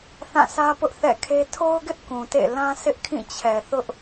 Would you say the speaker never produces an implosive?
yes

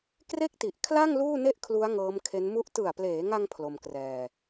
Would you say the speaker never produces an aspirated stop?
no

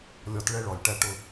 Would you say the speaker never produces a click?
yes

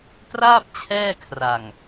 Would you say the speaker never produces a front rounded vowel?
yes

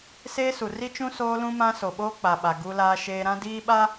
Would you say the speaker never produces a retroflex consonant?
yes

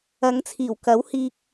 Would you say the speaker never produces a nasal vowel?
yes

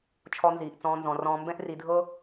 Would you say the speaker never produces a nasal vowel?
no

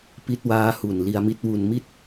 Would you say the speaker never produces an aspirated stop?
yes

